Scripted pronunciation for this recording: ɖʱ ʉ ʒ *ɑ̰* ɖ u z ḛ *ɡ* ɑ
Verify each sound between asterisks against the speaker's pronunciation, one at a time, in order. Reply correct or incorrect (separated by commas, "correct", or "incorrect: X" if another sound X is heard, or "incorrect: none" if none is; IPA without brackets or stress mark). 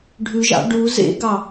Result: correct, correct